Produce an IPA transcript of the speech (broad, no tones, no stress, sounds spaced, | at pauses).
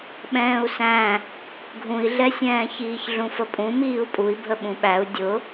ɓ ɛ̃ː u̯ s æ̃ | ɡʱ ũ i̯ ɮ ɛ sʲ ɛ̃ː ç iː ç ɮ ũ f ə pʼ ũ m iː u̯ pʼ u i̯ bʱ ə ɓ ũ ɓ æ u̯ dʲ ʊ